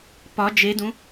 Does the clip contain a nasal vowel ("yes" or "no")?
yes